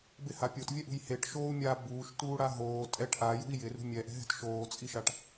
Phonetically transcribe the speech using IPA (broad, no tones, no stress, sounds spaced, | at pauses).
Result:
b ɪ h a pʲ o t vʲ ɛ ʔ ṳ j h e ʈ ʃ oː u̯ mʲ a b uː ʃ t uː ɽ a ɦ oː tʼ ɛ ʈ ʔ a j ṳ i̯ j ɪ r ṳ mʲ ɛ ʔ ɛ̤ ɦ ɛ̤ t ʃ oː t͡sʼ i ʃ a ʈ